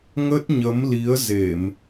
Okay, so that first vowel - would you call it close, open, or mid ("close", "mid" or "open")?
mid